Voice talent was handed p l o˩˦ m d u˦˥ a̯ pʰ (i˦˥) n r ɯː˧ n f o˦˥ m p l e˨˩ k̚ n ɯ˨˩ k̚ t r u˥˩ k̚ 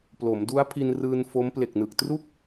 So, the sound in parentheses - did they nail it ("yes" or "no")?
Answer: no